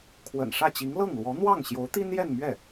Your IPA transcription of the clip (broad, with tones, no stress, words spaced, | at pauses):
kʰwə̰˨˩nʂä˥˩t͡ɕi˧˥ŋ lɤ˥˩ŋlwɔ˧˥ n̪wɑ˥˩ŋɕjo˧˥ʊ̯t̪i˥n jɛ˥˧nmɥɛ˥˩